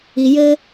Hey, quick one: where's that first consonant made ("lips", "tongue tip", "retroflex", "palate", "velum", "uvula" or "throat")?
palate